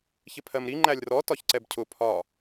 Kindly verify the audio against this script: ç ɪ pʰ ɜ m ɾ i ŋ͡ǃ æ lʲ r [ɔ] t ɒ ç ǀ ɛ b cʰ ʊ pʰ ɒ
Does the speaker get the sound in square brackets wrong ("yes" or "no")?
no